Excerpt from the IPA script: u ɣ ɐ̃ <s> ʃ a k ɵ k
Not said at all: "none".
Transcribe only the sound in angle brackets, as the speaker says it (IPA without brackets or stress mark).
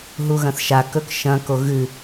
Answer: θ